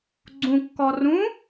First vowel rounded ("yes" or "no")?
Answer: yes